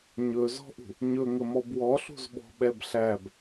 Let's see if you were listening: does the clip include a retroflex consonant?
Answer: no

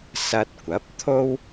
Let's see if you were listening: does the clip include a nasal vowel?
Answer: no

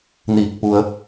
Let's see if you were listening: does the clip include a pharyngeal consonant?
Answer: no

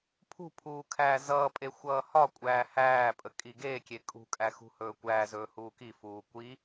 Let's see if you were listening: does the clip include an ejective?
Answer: yes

